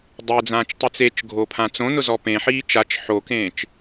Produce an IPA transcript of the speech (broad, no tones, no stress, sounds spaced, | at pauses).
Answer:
dˤ e d͡z ãː t͡ʃ tˤ ɪ t͡s e t͡ʃ ɡʱ o pʰ ã t͡s õ n ʊ z ɔ p ẽ ħ iː t͡ʃ a t͡ʃ ħ o k ẽː t͡ʃ